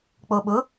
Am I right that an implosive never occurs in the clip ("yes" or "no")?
no